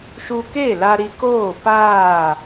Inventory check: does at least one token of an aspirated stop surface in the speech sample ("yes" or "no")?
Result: no